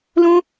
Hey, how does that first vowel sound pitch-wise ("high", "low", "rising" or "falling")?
high